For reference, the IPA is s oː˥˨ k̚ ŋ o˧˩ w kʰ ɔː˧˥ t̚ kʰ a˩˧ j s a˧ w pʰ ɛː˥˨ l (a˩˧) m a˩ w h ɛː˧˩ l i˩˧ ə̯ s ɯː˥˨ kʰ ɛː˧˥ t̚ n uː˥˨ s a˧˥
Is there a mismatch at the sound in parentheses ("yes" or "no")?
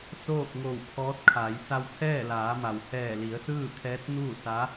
yes